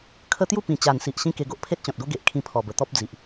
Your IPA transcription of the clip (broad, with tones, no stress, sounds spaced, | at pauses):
kʰ ə˦ t̪ j u˥˧ p ĩ˨˩ t͡ɕ a˨˩ n s i˨ ʔ ɕ ĩ˦ k e˧ ɡ o˦ ʔ pʰ e˦ t̚ t͡ɕ ɔ̃˨ t̚ ɡ o˦ ɡ e˨ ʔ kʰ ĩ˧ pʰ ɔ˨˩ b ə˨˩ t̪ ɔ˦ p̚ d͡z i˨ ʔ